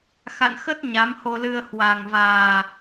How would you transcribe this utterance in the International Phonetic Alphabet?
x a̰˧˨ n x ə˦˥ t̚ ɲ a˨˦ m h o˧ l ɨ˧ ə̯ h w a˨˩ ŋ v aː˨˩

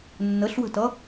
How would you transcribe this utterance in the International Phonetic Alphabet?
nː ə ɬ w ə̤ t ʌ

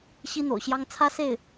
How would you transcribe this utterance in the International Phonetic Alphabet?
ɕ i˥ n̪ o̰˨˩ ʊ̯ ɕ j ɑ˥ ŋ t͡sʰ ä˥ s e˥˩ ɪ̯

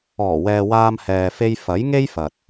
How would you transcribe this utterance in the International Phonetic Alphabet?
ɔː˨˩ w ɛː˨ w aː˧ m h ɛː˨ f e˧ j f ɐ˨˥ j ŋ e˥ j f ɐ˨ t̚

